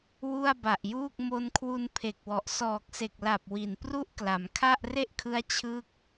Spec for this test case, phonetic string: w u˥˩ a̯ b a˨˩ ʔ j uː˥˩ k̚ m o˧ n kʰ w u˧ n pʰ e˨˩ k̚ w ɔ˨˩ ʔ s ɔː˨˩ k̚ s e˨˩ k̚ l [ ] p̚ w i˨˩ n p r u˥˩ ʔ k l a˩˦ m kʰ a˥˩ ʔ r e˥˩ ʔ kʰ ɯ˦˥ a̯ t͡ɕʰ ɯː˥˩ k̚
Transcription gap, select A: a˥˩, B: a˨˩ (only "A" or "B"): B